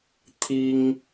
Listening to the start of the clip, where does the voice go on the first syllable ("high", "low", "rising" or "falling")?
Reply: high